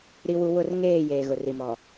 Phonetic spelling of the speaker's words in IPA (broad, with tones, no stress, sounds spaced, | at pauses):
ɾ i˨ w u˨ w ʊ˦˨ r ŋ eː˦˨ j eː˨ ɣ ʊ˨ r i˨ m ɔ˨